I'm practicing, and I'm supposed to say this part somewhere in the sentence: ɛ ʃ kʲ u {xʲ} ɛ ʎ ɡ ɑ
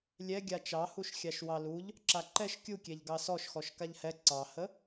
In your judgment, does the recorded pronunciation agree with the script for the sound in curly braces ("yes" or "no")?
no